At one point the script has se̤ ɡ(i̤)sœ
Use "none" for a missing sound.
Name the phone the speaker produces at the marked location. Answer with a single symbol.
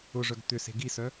i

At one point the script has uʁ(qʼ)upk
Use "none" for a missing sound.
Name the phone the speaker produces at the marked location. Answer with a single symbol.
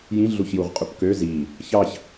qʼ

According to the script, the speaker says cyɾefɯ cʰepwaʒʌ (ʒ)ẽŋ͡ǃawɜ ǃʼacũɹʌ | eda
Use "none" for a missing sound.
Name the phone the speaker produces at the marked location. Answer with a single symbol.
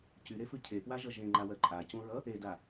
ʒ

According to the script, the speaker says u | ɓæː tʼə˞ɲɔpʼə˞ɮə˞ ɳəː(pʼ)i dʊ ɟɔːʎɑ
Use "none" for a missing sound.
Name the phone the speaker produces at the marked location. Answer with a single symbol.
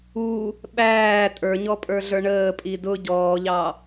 pʼ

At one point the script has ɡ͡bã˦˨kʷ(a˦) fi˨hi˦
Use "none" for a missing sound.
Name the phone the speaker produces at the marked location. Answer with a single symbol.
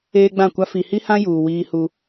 a˦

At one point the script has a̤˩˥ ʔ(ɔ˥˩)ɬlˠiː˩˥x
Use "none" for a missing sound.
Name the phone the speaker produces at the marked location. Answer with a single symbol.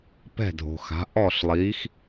ɔ˥˩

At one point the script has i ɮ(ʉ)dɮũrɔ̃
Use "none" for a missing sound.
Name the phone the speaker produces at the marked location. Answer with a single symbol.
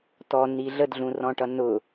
ə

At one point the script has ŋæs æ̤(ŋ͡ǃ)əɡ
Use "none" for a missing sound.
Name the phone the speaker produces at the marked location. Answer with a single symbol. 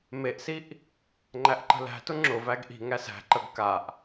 ǃ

